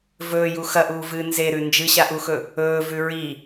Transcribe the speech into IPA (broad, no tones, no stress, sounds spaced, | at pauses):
v ɵː j u x ɐ ʔ uː v ɨː n z e ɾ ʉ n d͡ʒ ɨ ɕ a ʔ u x ɵ | ɵː v ʉ ɹ i